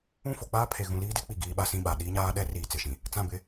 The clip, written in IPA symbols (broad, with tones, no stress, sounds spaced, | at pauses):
ũ˦˨ f o˨ k͡p aː˦ pʰ e˨ ɣ ũ˨ l iː˦ d e˦ k͡p i˦˨ ɡ iː˦ ɓ a˦ s ĩ˦˨ ɓ a˨ ɗ iː˦ ɲ aː˦ ɗ ɛ˦ r iː˨ t͡s ɪ˨ ʃ ĩ˨ | t͡s ã˦˨ b ɪ˦